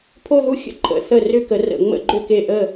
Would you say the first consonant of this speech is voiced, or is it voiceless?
voiceless